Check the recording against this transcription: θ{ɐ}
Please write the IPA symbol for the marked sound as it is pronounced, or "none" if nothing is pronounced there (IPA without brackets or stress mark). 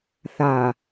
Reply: a